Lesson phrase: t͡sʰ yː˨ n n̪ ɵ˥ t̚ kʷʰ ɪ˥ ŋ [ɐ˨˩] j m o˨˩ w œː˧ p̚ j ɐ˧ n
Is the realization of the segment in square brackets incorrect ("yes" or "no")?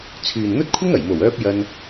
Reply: no